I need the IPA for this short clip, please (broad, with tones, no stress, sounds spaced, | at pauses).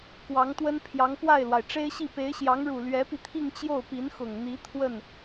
k w ɑ˧˥ ŋ t̪ w ə˥ n pʰ j ɑ˧˥ ŋ p w a˥˩ ɪ̯ l w a˩ ɪ̯ ʈ͡ʂ e˥ ɪ̯ ɕ i˥˩ p e˧˥ ɪ̯ ɕ j ɑ˧˥ ŋ ɻ u˨˩ l ɥ ɛ˧˥ p i˧ t̪ʰ i˥˧ ŋ t͡ɕ j o˥˩ ʊ̯ p i˧˥ n x ʊ˨˩ ŋ n̪ i˧˥ t̪ʰ w ə˥˩ n